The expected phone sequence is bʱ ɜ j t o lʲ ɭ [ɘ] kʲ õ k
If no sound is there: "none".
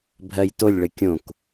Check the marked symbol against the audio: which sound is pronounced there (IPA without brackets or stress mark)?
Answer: ɘ